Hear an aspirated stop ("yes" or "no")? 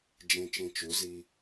no